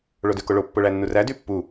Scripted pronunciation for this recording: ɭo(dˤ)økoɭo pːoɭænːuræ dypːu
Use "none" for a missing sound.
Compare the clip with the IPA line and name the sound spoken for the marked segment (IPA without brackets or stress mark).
d